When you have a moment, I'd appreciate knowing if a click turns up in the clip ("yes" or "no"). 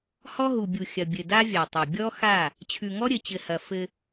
no